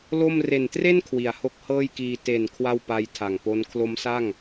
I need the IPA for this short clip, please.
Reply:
l o˥˩ m r e˨˩ n t r e˥˩ n kʰ w i˩˦ a̯ h o˦˥ k̚ h ɤː˥˩ j k iː˧ t e˨˩ n kʰ w a˥˩ w p a˦˥ j tʰ a˨˩ ŋ p o˦˥ n kʰ l o˦˥ m s a˥˩ ŋ

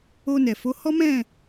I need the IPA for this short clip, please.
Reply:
o˧ n ɛ˨ f o˨˦ h ɔ˦ m ɛ̃˦˨

